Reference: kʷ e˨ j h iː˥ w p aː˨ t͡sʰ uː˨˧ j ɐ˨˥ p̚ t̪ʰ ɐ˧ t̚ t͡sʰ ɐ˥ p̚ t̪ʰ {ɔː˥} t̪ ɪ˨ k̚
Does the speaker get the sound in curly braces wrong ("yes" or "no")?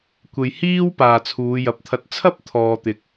yes